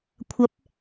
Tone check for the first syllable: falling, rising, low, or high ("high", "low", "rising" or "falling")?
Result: rising